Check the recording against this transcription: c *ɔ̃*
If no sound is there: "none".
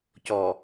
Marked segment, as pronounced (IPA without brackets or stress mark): ɔ